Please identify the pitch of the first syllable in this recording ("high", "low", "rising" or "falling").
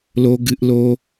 low